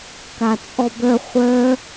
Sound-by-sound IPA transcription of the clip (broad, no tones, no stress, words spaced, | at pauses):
kat͡sʼɔbœ χʷœ